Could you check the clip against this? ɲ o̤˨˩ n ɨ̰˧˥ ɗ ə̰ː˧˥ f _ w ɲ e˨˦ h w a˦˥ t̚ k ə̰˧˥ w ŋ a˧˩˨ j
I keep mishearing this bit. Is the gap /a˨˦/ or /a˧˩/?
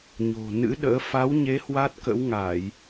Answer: a˨˦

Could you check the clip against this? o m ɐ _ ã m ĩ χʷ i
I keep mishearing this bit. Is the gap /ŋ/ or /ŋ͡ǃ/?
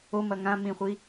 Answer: ŋ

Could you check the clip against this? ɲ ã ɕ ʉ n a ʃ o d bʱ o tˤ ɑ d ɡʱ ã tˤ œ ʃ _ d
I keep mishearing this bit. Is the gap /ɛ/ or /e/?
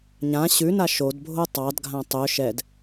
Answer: ɛ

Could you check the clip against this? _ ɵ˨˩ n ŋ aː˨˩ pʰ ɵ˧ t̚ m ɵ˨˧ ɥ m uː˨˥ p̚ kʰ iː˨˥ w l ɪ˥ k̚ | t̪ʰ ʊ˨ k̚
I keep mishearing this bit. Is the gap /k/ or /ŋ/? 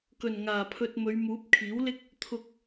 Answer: k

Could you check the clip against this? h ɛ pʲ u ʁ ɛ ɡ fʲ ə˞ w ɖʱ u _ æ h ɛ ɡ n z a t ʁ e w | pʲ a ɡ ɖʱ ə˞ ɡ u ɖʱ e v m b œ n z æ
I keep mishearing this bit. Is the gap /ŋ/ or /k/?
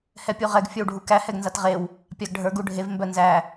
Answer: k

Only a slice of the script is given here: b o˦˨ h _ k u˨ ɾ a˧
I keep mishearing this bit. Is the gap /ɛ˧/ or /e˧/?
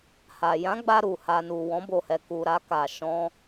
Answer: ɛ˧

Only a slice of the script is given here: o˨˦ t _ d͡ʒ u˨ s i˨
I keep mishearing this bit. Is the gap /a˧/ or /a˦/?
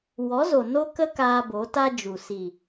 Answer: a˦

